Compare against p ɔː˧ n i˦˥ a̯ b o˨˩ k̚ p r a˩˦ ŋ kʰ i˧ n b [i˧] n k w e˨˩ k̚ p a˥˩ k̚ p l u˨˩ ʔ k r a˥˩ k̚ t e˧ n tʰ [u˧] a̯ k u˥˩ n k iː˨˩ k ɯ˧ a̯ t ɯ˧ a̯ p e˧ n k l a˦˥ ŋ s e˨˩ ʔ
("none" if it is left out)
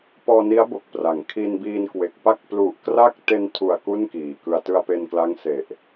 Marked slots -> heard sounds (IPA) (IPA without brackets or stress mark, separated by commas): iː˧, u˨˩